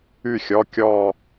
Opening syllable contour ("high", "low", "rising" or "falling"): falling